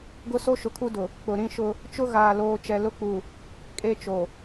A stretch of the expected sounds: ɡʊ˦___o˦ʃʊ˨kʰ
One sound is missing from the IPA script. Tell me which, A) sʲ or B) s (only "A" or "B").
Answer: B